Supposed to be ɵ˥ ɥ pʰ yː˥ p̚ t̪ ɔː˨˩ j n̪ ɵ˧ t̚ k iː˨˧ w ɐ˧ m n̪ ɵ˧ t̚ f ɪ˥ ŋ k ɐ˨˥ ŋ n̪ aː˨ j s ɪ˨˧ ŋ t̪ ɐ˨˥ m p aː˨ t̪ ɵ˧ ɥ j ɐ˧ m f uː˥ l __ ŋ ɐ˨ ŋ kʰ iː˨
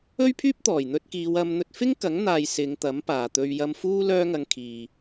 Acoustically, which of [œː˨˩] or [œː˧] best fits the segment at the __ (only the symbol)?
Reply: œː˧